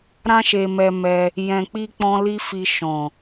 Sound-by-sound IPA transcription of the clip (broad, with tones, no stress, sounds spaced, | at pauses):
ɾ ã˦ ʃ e˧ m ɛ˧ m ɛ˧ | j ɛ̃˧ k͡p i˦ k͡p ɔ̃˦ l i˦ f i˧ ʃ ɔ̃˨